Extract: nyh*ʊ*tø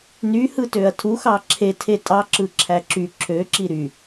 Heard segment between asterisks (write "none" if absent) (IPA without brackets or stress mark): ɯ